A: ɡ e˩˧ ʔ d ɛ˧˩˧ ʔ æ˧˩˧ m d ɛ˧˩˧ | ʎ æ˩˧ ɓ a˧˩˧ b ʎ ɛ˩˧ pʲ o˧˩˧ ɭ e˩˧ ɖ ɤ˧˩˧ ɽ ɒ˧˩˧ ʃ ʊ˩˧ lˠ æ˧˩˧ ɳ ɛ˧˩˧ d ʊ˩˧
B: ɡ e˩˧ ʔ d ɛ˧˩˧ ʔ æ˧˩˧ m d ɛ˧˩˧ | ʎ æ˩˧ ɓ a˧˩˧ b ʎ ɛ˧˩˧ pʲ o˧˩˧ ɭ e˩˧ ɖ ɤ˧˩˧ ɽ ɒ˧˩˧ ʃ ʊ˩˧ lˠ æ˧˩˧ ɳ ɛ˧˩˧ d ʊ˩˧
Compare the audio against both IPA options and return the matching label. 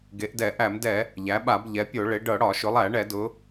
A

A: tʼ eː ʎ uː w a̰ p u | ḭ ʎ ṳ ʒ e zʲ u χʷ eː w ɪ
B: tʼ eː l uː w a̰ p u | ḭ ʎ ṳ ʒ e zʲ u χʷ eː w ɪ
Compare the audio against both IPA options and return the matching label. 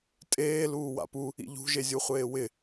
B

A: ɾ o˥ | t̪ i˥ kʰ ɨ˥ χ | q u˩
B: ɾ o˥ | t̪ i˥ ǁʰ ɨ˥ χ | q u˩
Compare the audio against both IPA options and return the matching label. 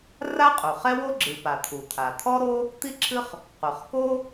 B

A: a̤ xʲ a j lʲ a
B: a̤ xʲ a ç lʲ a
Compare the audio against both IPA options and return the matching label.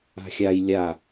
A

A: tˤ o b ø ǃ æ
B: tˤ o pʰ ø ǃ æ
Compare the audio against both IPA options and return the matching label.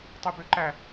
A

